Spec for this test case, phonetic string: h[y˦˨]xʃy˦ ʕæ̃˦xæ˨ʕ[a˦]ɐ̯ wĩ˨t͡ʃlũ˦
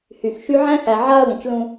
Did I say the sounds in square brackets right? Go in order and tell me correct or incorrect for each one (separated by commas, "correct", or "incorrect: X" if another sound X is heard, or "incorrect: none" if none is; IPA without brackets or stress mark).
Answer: incorrect: y˨, correct